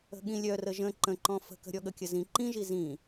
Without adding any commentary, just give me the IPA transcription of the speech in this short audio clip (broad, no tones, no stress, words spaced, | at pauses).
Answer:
ə̤ɠĩlʲœ rəʒə̃ ǃə̃ǃɔ̃ fə̤kə̤ ɾʲɔɠəkʲəzĩ ǃĩʒi zĩ